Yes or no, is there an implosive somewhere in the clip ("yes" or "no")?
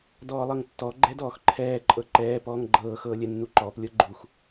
no